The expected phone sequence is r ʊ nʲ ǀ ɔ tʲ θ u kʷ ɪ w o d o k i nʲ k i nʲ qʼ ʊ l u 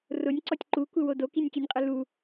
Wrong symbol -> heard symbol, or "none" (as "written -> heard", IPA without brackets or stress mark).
θ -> ǃ